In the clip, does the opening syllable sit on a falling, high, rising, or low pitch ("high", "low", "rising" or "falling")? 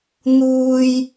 high